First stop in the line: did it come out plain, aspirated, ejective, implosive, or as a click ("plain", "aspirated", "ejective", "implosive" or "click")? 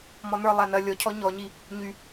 aspirated